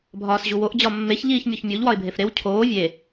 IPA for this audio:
bʱɒːsʑuwoʔ d͡ʑɒmːeç ʎiːçmʲoçmʲuʎ wɒɪ̯bʱefɾew cʰoː vʲe

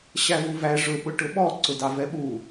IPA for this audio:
ɕævuvæ ʐʊ ɓʊʈʊɓɔ ǀʊdɑvɛɓu

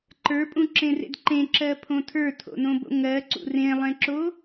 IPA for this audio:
ǃə˞pʼũǁẽrḛd ǃẽǁɜpʰõ tʰə˞tʰo̰nõbo̰ ŋɜǀṵ rẽlˠẽǁo

